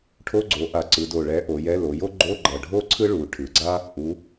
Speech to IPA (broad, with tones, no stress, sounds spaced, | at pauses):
ʈʰ o˧˥˧ ɡ͡ǀ o˩˧ ʔ a˨˩ ǀ ɯ˩˧ d o˨˩ ɭ ɛ˨˥ ʔ o˩˧ j ɛ˧˥˧ l o˩˧ j o˥ ɡ͡ǃ o˧˥˧ ɡ͡ǃ ʌ˨˩ ɖʱ o˥˧ ǀʰ ɯ˥ ɭ u˩˧ ʈʰ ɯ˩˧ ɡ͡ǀ a˥ | ʔ u˩˧